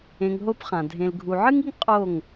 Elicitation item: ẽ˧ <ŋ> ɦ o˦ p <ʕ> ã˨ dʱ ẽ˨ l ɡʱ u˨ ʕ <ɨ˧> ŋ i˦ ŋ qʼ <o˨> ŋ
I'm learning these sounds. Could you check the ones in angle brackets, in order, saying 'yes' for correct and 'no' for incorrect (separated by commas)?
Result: yes, no, no, no